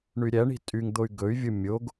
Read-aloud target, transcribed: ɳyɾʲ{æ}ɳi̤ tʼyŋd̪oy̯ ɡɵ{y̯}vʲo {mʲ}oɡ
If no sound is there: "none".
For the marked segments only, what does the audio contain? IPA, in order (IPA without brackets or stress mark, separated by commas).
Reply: æ, y̯, mʲ